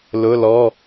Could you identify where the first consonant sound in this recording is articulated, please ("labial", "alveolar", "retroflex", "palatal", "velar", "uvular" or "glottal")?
alveolar